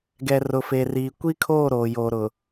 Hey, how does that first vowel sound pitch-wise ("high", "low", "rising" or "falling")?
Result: low